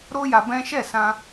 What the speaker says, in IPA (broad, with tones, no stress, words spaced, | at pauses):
ɾo˦ja˧ bɛ̃˦ ʃɛ˦˨sã˧